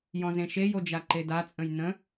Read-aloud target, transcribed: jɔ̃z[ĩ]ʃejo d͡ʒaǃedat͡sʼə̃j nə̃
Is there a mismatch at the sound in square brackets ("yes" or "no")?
yes